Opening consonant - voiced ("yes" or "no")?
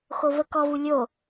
no